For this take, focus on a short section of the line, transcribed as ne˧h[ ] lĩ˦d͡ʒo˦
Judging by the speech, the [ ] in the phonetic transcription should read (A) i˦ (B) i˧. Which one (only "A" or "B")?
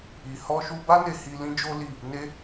B